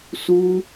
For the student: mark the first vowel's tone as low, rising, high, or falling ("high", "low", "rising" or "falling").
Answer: high